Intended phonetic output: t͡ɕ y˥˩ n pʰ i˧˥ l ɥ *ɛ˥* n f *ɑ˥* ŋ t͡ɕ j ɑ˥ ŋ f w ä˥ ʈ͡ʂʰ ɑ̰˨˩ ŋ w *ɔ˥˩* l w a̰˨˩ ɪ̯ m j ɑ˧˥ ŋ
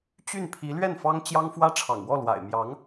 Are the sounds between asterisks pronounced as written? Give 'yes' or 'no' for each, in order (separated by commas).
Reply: no, yes, yes